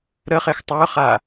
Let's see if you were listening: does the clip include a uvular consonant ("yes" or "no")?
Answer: yes